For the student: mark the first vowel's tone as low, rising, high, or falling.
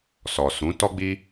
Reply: low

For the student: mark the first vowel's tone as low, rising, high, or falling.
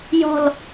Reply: falling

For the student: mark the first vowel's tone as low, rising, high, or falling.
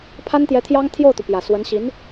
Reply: high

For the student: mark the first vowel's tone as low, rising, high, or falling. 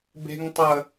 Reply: high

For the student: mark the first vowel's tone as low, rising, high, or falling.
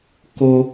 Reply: high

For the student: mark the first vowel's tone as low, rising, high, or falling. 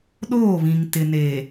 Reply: falling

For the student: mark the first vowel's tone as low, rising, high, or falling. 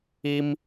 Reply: high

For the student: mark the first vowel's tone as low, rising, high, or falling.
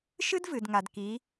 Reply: high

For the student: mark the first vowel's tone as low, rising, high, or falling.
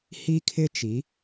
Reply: high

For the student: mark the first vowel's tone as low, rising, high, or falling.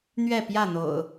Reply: falling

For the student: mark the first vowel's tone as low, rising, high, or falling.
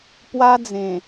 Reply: high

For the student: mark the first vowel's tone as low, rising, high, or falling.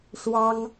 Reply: high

